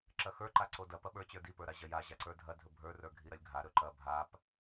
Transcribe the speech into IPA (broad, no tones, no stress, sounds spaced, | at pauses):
ǁ ɐ x ə˞ ǃ a ǀ o d ɐ p ɐ ɓ ə˞ t͡ɕ ə˞ d i p ə˞ ɾ a ʑ ɐ j a ʑ a ǀ ə˞ dʱ ɐ dʱ ɵ bʱ ə˞ r ə˞ ɡʱ i ɾ ɐ lʲ ɡʱ a ɾ ɵ ǃ ɐ bʱ a p